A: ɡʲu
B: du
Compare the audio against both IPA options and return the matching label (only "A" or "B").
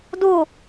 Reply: B